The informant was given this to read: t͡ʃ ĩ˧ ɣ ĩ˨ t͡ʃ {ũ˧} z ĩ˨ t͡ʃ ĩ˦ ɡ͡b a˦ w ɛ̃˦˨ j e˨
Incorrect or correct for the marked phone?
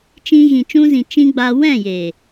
correct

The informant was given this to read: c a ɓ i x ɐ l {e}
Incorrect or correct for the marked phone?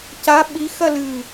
incorrect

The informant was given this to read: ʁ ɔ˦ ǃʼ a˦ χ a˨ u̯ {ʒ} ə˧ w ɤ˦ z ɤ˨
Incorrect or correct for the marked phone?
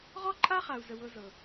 incorrect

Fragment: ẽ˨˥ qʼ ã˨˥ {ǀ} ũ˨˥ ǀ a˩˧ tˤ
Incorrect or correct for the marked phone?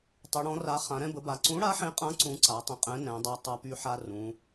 correct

